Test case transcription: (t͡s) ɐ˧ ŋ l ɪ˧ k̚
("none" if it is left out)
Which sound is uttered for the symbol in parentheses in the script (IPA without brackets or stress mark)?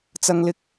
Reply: t͡s